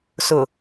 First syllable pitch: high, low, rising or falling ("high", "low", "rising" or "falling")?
low